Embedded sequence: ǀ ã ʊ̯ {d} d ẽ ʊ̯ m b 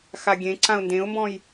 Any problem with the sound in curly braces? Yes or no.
yes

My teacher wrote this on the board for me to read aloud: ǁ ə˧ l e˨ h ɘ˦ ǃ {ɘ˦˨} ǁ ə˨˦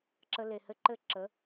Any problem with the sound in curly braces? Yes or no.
no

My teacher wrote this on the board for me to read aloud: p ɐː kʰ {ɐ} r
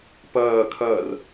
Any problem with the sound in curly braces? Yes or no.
no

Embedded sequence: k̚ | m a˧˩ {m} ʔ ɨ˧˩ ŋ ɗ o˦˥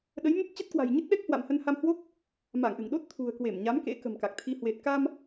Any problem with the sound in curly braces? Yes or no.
yes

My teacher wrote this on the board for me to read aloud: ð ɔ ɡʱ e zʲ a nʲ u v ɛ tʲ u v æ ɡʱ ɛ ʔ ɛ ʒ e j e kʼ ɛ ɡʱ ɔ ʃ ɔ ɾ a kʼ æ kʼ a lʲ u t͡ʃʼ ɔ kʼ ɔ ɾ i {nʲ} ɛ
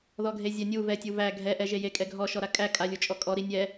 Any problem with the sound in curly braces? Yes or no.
no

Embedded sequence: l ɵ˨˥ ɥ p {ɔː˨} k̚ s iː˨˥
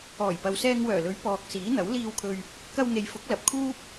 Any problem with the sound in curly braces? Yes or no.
no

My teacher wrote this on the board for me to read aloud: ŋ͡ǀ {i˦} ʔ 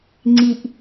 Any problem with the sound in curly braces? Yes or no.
yes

